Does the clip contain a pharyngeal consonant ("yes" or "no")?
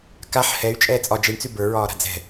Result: yes